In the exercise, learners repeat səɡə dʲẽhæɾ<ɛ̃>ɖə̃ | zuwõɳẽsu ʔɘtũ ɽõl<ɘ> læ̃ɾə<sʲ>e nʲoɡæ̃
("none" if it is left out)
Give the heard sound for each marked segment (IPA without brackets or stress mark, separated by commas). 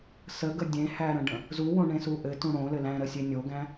ə̃, ɘ, sʲ